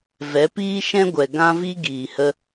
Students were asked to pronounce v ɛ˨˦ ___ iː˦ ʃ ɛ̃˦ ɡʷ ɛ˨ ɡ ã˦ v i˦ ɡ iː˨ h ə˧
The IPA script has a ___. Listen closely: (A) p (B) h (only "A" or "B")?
A